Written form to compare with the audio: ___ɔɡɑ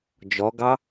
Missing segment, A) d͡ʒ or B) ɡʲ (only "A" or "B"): A